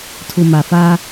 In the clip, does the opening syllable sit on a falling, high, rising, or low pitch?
low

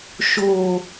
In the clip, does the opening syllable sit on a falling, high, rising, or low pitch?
low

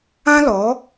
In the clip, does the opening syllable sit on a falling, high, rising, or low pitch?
high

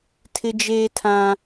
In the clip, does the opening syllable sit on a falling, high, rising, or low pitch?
high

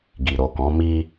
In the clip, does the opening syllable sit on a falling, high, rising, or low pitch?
low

